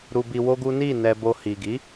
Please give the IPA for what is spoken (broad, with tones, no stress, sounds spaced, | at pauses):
ɾ u˧ b i˧ w o˦ ɡ u˦ n i˦˨ n ɛ˧ b o˧ h i˨ ɡ i˨˦